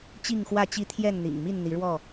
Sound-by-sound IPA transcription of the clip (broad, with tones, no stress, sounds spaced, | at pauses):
t͡ɕ i˥˨ ŋ x w ä˥˨ t͡ɕ i˦ t̪ʰ j ɛ˥˨ n n̪ ḭ˨˩ ŋ m i˥˨ n n̪ i˨˦ ɻ w ɔ˥˨